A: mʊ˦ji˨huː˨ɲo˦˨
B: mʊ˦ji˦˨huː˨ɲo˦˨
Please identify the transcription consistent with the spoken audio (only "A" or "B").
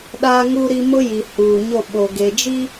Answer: A